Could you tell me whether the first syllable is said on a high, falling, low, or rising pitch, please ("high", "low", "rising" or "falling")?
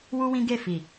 high